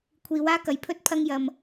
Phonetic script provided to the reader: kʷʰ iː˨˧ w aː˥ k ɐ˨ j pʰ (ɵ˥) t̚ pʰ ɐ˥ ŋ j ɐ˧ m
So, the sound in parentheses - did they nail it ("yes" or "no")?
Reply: yes